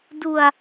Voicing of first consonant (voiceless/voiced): voiced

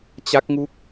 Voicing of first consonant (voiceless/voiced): voiceless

